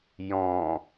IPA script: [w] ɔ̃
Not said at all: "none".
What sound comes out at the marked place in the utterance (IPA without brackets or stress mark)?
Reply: j